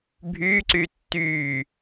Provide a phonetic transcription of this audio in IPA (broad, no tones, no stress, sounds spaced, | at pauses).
bʱ yː ǀ yː tː yː